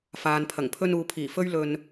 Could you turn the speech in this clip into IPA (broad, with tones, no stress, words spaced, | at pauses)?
faː˨npʰɐ˨˩ŋ pʰɵ˧nuː˨pʰiː˨˩ fɵ˥ɥlɵ˧n